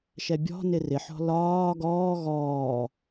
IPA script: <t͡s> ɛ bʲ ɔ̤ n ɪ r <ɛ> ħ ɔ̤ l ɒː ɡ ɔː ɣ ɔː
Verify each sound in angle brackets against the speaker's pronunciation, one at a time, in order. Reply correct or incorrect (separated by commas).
incorrect, incorrect